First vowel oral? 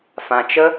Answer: no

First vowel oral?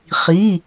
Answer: yes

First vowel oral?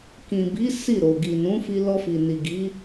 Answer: no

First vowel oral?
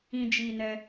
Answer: no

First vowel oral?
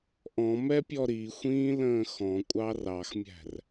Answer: no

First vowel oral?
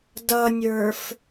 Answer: yes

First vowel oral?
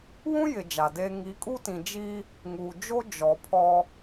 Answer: no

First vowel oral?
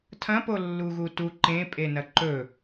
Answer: no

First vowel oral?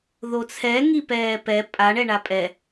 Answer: yes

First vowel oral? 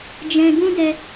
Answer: no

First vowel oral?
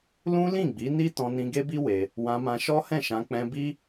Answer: no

